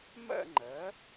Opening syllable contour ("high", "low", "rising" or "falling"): falling